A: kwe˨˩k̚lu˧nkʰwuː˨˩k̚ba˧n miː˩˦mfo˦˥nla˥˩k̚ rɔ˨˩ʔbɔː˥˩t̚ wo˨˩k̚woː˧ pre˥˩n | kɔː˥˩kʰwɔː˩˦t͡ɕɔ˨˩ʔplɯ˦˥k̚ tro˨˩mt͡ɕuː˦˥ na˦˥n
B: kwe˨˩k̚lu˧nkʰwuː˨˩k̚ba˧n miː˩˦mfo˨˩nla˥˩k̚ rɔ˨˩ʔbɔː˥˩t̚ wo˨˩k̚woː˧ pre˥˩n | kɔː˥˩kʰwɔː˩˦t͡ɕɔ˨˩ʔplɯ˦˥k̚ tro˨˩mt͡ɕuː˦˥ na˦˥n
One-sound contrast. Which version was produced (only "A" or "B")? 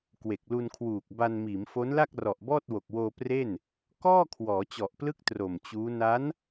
A